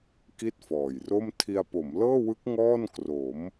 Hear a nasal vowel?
no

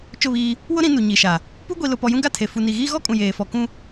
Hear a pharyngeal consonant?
no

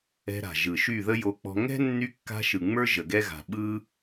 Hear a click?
no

